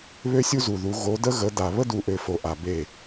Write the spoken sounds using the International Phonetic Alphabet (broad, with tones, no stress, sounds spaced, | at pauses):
β ø˦ sʲ u˦ z u˨ ð u˨˦ ɣ o˨˦ d ə˦ ɣ ə˨˦ d a˨ β ə˦ d u˨ ʔ ø˨ f o˨ ʔ a˨ b e˦˨